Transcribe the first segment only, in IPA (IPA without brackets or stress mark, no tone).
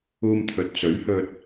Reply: uː